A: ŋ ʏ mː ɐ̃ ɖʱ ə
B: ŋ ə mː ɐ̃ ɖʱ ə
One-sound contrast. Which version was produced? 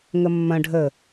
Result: B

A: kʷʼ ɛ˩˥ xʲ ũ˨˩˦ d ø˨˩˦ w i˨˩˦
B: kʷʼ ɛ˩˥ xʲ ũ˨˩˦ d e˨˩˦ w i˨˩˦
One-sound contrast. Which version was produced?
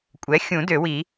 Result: A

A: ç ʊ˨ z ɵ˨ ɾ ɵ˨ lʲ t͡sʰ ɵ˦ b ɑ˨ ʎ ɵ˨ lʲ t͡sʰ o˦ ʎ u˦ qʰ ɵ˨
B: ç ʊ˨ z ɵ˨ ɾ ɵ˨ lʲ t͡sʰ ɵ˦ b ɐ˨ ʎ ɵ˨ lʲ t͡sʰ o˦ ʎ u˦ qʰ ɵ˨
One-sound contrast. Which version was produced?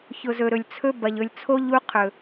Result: B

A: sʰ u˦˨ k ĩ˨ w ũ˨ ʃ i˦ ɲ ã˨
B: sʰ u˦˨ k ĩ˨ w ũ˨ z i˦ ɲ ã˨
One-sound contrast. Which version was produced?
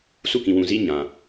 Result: B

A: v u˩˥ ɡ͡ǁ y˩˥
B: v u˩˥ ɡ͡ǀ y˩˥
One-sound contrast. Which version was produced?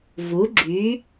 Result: A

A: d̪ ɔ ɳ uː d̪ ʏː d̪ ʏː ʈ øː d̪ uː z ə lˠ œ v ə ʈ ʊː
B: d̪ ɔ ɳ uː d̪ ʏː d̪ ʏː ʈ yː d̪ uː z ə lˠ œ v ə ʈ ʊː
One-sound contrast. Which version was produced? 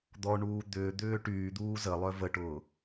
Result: B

